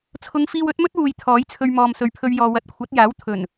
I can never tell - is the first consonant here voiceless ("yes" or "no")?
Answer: yes